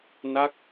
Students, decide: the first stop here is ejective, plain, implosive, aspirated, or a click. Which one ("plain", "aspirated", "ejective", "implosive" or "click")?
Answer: plain